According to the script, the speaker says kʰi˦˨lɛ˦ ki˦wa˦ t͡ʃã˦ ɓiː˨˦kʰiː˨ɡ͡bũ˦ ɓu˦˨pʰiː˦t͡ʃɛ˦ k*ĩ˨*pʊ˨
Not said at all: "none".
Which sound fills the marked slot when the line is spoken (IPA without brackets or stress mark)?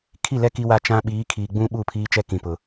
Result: ĩ˨